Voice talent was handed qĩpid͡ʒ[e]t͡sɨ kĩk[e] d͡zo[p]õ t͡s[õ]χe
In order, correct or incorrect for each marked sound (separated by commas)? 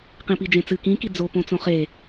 incorrect, incorrect, correct, correct